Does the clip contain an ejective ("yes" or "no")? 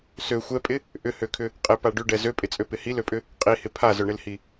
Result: yes